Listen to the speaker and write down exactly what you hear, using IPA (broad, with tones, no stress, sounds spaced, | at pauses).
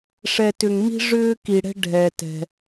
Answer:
ʂ ɛ˧ t ʏ˧ ŋ m i̤˦ ʐ ʏː˦ k i˧ ɽ ɛ̤˦ ɖʱ ɛ˧ t ɛ̤˧